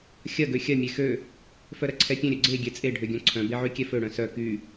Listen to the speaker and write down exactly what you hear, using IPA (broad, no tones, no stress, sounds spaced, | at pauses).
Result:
xʲ ɐ ɡ ø xʲ ɐ mʲ e x ø | f œ ɾ ɐ ǀʰ ɛ pʲ œ̃ ɾʲ œ ɡ͡ǀ e ɡʲ ɛ t͡sʼ e ɖʱ ø ɡʲ œ̃ ǀʰ œ̃ b e ʕ y kʲ ɛ f ø ɽ œ̃ s œ k y